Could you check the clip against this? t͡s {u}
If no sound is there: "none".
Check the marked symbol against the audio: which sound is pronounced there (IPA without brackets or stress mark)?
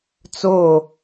o